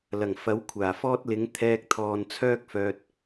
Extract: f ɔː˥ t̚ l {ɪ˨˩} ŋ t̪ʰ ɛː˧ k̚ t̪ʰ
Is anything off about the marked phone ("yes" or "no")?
yes